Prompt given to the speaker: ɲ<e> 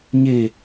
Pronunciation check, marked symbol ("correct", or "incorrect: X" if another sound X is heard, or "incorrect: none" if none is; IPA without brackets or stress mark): correct